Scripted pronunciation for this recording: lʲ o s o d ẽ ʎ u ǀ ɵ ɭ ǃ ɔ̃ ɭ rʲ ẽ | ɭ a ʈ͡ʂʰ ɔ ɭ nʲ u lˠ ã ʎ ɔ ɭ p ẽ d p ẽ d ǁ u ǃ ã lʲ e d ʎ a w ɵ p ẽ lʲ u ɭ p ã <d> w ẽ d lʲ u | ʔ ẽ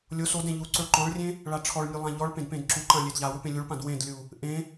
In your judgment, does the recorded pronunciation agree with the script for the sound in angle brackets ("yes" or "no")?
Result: yes